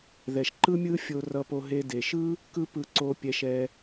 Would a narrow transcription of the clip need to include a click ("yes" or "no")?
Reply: yes